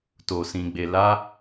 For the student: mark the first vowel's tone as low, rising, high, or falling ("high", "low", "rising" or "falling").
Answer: low